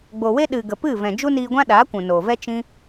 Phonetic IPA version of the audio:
ɡ͡bo˨we˦ɗɨ˨ ɡə˨pɨ˦˨vɛ̃˨ d͡ʒu˦niː˧ɡʷã˦ ɗaː˨˦kʷũ˨noː˨vɛ˦ t͡ʃĩ˦

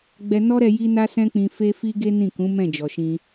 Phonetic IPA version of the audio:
ɡ͡bɛ˧nɔ˦ɾɛ˧ ji˦na˦sɛ̃˦k͡pĩ˧ fe˦fi˦ɡe˦ nĩ˦˨kũ˨˦ mɛ̃˦˨d͡ʒɔ˨ʃĩ˧

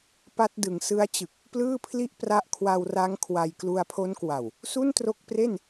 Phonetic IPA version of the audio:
pa˦˥t̚dɯ˩˦ŋsɯ˦˥a̯t͡ɕɯ˨˩k̚ | plɯː˥˩pʰli˥˩ʔ pra˦˥ʔkʰwa˧wra˦˥ŋ kʰwa˧j klu˧a̯pʰo˦˥nkwa˨˩w | su˥˩ntro˦˥k̚pre˥˩n

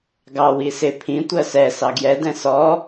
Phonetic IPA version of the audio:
ɡɑ wisɪ pʰĩ tʷɜsɛ sɑɡjɛ dɛ̃sɔ

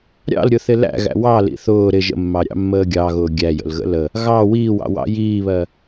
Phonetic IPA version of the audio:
ɾʲɑ̰lɾʲʊθɪ læ̰ɣæ̰ wɑlḭ θʊː ɾɪ ʒə̰mːɑ ɾʲɑ̰mːəːɡʲɑɣʊː ɡʲæjə̰l ɣə̰lə | ɣɑ wiːwɑ̰ wɑ̰jiːβɜ

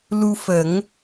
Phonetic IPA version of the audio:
lu˧fə˨˩˦ŋ

